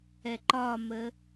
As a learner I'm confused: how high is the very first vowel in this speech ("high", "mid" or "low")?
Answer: mid